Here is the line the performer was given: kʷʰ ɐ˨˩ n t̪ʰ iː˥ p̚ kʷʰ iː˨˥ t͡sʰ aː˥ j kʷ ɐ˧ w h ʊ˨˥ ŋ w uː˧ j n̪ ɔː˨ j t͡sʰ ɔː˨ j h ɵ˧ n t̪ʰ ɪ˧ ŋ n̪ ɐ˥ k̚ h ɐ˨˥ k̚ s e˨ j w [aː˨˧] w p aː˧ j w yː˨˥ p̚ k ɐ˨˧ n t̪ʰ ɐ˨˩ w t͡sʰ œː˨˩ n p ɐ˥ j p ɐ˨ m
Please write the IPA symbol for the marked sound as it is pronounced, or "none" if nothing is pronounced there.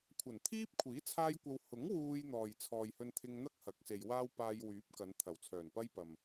aː˥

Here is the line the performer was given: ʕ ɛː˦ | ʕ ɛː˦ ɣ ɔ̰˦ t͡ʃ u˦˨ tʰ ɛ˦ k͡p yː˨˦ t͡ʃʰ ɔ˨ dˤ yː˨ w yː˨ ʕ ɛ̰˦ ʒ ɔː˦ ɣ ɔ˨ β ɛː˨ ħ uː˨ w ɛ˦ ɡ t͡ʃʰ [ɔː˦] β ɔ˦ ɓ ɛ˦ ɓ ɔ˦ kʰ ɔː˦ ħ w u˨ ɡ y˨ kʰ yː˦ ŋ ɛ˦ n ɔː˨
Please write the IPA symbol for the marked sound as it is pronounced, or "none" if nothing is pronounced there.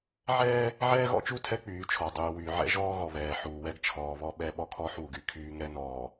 ɔː˨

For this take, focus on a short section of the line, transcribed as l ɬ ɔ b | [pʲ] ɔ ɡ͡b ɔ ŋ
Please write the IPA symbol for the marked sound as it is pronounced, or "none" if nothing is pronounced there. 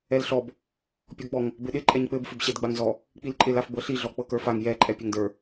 pʲ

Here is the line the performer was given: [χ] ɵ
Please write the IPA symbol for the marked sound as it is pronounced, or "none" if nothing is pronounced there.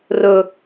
r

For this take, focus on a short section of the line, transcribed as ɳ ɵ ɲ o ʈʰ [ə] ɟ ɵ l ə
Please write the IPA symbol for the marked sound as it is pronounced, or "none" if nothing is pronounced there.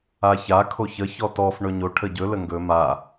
ə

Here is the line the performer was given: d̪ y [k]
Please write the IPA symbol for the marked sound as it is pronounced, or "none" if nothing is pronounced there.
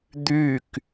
k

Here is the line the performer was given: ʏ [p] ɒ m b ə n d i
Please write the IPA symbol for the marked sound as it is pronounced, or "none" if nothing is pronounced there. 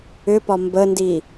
p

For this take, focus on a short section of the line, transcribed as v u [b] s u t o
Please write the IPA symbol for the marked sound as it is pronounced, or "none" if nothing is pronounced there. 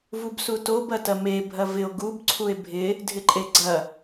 b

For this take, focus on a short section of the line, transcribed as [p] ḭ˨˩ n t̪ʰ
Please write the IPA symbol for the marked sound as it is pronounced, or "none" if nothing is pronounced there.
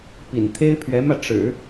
p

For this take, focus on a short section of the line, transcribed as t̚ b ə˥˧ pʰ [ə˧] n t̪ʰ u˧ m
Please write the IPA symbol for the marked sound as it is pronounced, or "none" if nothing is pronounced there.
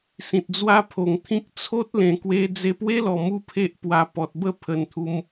ə˧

